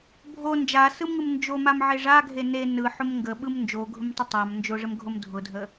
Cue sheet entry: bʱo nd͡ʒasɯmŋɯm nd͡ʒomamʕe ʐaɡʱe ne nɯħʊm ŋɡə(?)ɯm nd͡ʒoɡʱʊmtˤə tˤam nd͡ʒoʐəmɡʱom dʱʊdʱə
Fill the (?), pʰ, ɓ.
ɓ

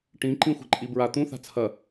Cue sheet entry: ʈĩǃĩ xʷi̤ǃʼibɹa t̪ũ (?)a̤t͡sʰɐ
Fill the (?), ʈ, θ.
θ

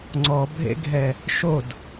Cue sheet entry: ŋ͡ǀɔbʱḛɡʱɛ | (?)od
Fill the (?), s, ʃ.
ʃ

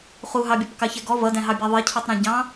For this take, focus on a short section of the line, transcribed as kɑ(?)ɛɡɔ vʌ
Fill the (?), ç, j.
ç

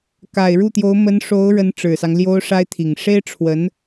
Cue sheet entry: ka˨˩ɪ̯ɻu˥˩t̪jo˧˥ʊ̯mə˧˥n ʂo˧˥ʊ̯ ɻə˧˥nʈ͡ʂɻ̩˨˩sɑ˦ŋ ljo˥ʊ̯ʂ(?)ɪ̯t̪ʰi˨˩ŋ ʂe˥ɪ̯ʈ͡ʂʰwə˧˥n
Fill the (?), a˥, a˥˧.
a˥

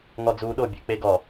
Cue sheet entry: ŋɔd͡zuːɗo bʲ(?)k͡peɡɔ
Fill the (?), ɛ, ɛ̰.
ɛ̰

